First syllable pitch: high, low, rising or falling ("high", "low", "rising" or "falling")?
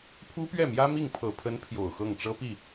high